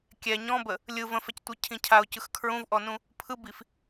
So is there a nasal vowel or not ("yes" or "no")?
yes